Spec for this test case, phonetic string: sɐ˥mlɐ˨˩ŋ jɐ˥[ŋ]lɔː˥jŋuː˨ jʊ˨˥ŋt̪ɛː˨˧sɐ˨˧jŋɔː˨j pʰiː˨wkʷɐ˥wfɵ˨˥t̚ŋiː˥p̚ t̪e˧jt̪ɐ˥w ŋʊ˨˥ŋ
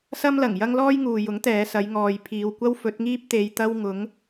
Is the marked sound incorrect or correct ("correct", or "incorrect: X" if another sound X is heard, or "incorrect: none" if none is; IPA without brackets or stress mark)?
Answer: correct